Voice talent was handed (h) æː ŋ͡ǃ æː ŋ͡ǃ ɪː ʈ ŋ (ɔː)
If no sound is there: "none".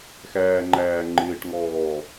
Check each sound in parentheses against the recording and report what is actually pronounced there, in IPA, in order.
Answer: x, ɔː

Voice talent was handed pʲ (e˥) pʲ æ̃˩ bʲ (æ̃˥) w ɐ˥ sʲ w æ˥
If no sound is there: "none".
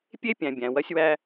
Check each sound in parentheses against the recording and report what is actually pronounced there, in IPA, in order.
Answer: e˥, æ̃˩

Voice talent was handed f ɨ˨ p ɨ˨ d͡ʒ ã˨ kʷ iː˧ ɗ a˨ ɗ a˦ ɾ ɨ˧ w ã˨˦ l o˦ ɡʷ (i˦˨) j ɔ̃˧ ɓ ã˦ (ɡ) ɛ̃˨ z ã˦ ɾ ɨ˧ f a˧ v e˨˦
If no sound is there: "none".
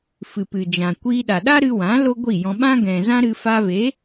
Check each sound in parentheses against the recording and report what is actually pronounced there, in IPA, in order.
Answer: i˦˨, ɡ

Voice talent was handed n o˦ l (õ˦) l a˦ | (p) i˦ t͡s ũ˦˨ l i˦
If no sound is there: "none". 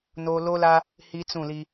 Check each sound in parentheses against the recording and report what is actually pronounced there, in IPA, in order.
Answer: o˦, h

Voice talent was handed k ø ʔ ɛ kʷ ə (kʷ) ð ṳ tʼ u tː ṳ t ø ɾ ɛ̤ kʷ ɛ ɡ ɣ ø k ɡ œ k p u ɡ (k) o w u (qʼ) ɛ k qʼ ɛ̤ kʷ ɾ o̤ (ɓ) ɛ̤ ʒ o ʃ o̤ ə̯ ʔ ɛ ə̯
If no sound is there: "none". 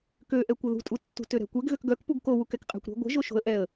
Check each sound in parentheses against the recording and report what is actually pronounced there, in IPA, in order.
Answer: none, k, k, ɡʷ

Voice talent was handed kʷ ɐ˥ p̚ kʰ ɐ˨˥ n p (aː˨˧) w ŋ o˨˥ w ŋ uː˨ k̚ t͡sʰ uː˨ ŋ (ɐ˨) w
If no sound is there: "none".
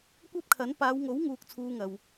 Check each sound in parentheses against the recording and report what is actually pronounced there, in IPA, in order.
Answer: aː˨˧, ɐ˨

